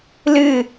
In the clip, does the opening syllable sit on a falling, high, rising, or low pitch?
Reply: falling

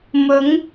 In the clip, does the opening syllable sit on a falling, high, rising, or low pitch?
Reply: rising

